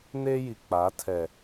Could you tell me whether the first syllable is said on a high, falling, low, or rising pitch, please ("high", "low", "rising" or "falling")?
high